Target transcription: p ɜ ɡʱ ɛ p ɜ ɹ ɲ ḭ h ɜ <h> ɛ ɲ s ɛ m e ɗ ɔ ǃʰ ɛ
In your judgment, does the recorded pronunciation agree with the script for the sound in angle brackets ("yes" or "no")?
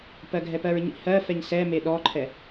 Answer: no